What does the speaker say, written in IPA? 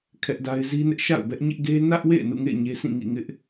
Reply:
kʰ ɛ˦ ʔ d a˦ ɪ̯ z i˦ n ɪ˦ ʔ ʃ a̰˦˨ ʊ̯ b ɛ˦ ʔ ɲ ɪ˦ ʔ ɡ e˦ n ä˦ ʔ w ḛ˦˨ ɪ̯ n ṵ˦˨ ŋ ḛ˦˨ ɪ̯ ɲ e˦ s ĩ˦˨ ŋ ḭ˦˨ ŋ ɪ˦ ʔ

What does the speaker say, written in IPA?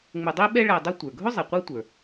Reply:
ŋ͡m ʊ˧ dˤ i˥ ɓ ɛ˥ ɭ æ˧ dˤ ʊ˥ tʷ ə˞˩ ɡʱ ʊ˥ zˤ i˩ qʷ ə˞˥ tʷ ə˞˩

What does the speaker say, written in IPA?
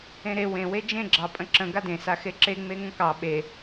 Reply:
ẽ ɾ e w ẽ w e d͡ʒ ẽ ɡ͡ǁ ɑ pʼ ə̃ ǁ ə̃ ɡ a d ẽ s a x e ǁ e ŋ͡m e ŋ ə̃ k ɑ ɓ e

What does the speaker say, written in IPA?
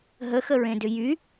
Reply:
ɦ ə x ə ɹ ẽ d ʏ j y

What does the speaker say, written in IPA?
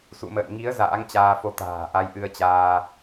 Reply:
s ṵ˧˨ m ə̰ː˧˨ n ŋ i˨˦ ə̯ z a̰ː˧˥ ŋ t͡ɕ aː˧ f o˧ t̪ a̤ː˨˩ ʔ a˧ j ʔ ɨ˧ ə̯ t͡ɕ aː˧

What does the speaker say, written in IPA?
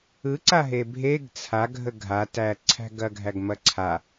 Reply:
ɯ ǀ a ɦ e bʱ e ɡ t͡sʰ a ɡʱ ə ɡʱ a t æ ǀʰ æ̤ ɡ ɐ ɡʱ æ ɡ m ɐ ǀʰ a

